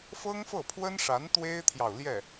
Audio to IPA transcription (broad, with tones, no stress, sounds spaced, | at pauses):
f ɤ˥ ŋ f ɤ˥˩ pʰ w ə˥ n ʂ a˧˥ n t̪ w e˥ ɪ̯ t̪ʰ j ɑ˨ ʊ̯ l j ɛ˥˩